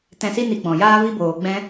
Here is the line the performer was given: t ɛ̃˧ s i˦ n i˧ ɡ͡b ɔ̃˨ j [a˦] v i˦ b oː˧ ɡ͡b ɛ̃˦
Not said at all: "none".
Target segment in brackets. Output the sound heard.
aː˦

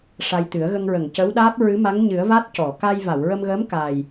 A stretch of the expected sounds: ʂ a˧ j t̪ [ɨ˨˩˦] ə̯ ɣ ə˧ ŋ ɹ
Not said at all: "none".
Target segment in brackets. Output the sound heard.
ɨ˨˩˦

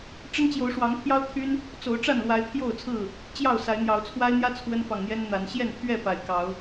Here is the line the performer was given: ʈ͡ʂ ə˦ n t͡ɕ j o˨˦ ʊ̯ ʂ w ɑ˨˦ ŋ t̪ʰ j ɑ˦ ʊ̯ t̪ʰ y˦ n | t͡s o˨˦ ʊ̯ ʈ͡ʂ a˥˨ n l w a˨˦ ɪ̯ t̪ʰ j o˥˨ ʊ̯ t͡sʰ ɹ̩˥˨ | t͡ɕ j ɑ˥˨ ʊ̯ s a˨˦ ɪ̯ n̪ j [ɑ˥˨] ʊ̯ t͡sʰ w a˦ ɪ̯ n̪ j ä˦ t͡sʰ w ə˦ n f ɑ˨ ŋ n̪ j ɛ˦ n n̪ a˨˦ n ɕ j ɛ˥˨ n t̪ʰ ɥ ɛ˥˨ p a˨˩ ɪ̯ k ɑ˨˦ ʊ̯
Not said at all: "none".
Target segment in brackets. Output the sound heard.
ɑ˨˦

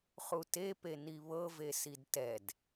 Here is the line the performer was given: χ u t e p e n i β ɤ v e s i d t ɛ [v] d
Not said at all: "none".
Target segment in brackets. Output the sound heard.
none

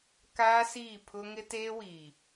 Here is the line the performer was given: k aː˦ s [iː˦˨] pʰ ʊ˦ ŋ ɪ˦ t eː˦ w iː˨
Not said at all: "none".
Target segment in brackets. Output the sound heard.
iː˦˨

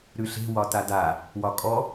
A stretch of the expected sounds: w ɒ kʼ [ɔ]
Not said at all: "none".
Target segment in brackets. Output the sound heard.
ɔ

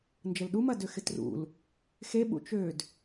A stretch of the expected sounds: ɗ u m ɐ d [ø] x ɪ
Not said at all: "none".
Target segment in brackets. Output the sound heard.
ø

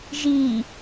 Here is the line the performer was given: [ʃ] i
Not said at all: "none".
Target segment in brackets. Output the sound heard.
ʒ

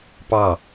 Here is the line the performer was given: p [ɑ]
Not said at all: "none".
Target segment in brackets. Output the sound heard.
ɑ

